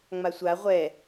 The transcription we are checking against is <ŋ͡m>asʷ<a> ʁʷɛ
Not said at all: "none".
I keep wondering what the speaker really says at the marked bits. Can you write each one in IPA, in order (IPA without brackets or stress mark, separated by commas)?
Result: ŋ͡m, a